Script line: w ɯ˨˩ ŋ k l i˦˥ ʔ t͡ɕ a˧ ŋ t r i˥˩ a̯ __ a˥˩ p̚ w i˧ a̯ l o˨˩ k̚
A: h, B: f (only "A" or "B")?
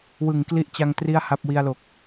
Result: A